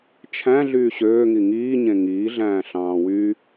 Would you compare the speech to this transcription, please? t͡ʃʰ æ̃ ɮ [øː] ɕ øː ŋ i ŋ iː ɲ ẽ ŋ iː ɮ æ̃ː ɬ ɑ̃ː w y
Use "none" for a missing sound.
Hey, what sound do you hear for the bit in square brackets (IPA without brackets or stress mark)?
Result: yː